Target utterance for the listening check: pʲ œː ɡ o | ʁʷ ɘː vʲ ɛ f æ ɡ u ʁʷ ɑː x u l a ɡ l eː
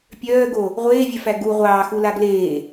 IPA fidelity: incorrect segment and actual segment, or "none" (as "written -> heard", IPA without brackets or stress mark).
ɘː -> eː